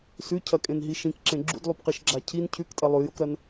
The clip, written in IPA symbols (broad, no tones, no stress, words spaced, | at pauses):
sʉcʰɐkʼẽnɦi ʃĩkǁẽ ɡ͡ǁṵdlˠupqiʃɡ͡ǁa cʰin cʰʉktʼɐ lˠʉjokɾɐn